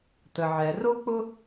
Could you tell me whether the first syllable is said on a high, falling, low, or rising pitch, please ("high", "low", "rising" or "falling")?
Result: low